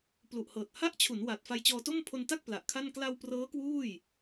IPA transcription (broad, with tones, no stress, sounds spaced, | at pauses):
p l u˨˩ ʔ h ɤː˨˩ t̚ h a˥˩ ʔ t͡ɕʰ u˩˦ n w a˨˩ t̚ f a˧ j t͡ɕ ɔː˧ t o˥˩ m pʰ o˧ n t a˥˩ k̚ p l a˨˩ ʔ kʰ a˥˩ n k l a˧ w p r ɤː˦˥ k w uː˥˩ j